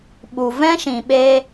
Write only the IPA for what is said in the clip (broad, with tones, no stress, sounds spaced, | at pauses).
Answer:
ɓ u˨ v ɛ̃˦ ʃ ĩ˨ ɓ e˦